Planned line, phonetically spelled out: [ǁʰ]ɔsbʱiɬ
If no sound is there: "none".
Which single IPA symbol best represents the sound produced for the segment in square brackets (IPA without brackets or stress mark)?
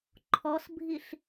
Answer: ǃʰ